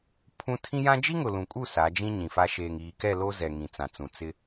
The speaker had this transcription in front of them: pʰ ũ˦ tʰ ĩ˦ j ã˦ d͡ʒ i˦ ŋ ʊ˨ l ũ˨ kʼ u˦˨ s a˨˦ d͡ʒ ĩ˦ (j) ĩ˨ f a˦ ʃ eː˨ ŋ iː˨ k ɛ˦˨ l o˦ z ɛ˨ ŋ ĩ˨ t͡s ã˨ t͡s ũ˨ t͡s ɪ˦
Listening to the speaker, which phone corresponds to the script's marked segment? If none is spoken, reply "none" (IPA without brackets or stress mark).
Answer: ɲ